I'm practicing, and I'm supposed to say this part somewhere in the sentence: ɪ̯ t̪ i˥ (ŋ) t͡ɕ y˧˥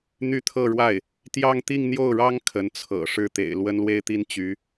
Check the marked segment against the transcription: incorrect: n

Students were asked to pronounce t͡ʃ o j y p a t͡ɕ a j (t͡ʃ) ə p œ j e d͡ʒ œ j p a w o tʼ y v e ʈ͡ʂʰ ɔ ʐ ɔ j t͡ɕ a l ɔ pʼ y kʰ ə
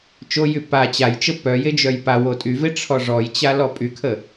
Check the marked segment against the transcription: correct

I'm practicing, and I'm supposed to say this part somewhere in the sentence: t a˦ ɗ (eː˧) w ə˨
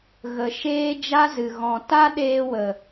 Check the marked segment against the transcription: correct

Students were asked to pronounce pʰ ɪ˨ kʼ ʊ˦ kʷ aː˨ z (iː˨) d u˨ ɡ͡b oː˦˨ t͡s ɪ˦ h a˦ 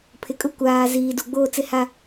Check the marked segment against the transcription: correct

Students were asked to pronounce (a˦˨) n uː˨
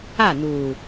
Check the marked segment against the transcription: correct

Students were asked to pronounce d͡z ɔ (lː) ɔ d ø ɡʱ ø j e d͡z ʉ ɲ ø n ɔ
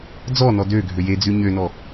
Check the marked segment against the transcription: incorrect: n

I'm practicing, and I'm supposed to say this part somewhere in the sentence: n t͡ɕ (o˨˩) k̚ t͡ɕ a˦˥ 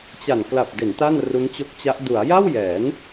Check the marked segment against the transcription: incorrect: o˦˥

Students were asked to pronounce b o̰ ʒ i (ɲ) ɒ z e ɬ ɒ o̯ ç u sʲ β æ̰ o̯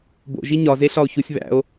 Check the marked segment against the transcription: correct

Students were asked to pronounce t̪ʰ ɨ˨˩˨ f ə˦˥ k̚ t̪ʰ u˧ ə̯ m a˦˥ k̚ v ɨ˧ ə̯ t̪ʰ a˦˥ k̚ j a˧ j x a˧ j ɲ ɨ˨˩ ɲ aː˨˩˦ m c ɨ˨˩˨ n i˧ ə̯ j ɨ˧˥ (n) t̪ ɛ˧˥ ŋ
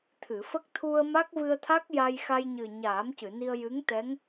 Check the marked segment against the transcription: incorrect: ŋ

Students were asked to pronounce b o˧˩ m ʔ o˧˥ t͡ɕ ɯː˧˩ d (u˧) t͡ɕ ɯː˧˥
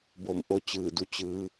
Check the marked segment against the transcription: correct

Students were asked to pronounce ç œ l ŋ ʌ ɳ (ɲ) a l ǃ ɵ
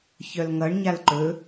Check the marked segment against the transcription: correct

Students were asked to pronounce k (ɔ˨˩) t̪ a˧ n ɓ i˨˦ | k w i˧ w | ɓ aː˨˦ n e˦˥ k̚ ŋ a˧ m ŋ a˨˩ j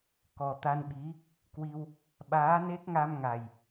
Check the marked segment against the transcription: correct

